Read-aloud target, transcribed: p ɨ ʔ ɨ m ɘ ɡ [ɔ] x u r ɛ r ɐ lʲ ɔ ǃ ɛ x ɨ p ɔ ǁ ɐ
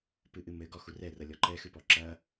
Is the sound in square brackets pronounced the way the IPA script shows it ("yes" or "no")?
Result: yes